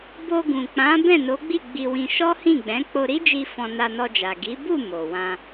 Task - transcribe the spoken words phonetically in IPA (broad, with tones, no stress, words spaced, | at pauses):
bo˧ɡũ˨k͡pã˨˦ bɛ̃˦˨no˨˦ɡ͡bi˦˨ ɡ͡bi˧wĩ˧ ʃɔ˦hĩ˦˨ɡ͡bɛ̃˨˦ k͡po˧ɾi˦d͡ʒi˧ fɔ̃˧ na˧nɔ˧d͡ʒa˨ ɡi˨˦bu˦˨ mo˨wã˧